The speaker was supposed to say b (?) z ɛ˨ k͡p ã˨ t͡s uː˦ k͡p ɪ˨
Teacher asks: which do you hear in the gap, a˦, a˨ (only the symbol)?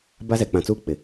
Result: a˦